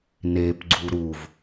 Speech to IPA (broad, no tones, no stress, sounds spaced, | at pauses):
n e p ɡ͡ǀ u ɾ u v